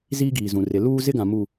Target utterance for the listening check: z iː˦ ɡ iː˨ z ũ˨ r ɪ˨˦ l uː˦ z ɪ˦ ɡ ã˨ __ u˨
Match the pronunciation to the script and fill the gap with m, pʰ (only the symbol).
m